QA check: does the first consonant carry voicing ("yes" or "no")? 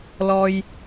yes